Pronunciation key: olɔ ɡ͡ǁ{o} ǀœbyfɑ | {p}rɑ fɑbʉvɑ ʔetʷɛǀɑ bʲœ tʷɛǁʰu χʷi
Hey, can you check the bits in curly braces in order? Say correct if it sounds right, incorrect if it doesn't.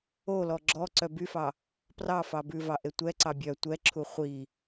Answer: incorrect: ɔ, correct

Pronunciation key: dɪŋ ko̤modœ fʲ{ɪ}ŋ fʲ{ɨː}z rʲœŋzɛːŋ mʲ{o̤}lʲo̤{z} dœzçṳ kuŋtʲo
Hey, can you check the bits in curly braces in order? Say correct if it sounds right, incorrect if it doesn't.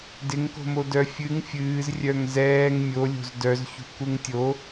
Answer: incorrect: ɨ, correct, incorrect: o, correct

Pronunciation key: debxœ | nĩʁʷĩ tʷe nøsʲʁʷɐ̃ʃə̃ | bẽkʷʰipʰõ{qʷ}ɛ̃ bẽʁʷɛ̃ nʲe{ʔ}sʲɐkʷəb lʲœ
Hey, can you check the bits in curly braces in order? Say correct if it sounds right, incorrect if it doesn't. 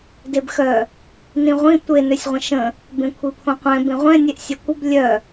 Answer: correct, correct

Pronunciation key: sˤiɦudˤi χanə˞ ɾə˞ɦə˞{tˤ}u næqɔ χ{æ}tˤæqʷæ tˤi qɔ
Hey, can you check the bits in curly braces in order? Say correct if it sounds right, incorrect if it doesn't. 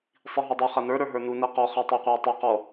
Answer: incorrect: n, correct

